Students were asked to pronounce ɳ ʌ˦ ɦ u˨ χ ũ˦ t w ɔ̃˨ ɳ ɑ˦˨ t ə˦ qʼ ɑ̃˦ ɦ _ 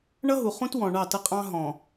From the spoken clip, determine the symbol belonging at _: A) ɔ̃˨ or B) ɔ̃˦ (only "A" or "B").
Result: A